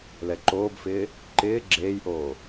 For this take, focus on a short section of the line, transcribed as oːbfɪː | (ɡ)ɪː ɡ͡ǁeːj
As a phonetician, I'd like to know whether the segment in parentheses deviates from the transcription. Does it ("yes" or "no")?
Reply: yes